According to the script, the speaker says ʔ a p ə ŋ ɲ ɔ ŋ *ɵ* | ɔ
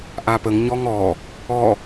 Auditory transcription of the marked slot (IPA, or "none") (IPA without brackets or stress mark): ɔ